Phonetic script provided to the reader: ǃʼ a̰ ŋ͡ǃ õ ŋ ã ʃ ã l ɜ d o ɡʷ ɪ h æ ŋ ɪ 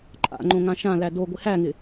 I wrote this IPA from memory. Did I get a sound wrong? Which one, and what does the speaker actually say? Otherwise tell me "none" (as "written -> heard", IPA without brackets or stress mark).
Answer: ɜ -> æ